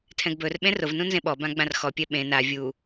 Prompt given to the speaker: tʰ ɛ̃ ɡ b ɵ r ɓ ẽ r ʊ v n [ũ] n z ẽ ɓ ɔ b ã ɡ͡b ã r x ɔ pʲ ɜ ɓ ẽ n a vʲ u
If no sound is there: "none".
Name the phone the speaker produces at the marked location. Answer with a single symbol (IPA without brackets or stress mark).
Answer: ũ